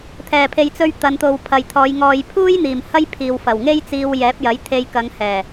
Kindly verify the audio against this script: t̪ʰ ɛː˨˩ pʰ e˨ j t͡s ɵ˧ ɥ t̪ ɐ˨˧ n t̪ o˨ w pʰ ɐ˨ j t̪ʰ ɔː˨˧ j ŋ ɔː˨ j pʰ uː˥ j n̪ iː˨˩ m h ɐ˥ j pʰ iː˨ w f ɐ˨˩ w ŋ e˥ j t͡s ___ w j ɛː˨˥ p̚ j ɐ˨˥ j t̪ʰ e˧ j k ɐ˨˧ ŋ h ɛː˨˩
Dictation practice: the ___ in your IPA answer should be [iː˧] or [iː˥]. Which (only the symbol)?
iː˧